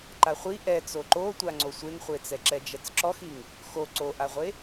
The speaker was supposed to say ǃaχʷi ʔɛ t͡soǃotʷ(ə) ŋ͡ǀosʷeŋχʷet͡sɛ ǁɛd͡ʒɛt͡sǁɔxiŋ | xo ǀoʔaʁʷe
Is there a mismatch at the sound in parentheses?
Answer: yes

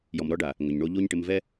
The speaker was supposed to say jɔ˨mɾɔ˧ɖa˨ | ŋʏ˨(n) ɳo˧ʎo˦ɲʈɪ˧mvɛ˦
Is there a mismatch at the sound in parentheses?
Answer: yes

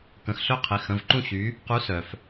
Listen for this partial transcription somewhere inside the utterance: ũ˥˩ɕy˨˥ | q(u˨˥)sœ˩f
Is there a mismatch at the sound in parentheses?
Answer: no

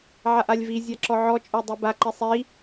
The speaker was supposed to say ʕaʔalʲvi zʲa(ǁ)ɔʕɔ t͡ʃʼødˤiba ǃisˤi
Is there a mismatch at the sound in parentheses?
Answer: no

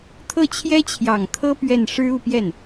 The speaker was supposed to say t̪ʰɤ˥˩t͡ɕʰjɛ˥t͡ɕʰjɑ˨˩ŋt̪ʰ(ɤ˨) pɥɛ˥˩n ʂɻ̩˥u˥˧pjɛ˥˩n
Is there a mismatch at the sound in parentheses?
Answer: yes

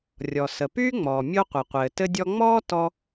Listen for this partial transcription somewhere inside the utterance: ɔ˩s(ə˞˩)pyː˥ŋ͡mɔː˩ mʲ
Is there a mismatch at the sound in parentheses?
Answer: yes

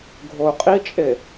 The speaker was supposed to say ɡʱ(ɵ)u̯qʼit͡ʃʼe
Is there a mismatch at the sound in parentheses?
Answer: yes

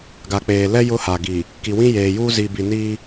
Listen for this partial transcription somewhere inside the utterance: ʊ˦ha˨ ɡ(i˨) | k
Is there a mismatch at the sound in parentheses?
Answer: no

